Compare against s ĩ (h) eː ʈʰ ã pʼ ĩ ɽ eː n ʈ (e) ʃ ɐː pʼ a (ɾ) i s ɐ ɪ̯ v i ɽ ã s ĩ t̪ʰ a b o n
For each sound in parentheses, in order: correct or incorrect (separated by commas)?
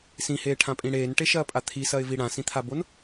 correct, correct, incorrect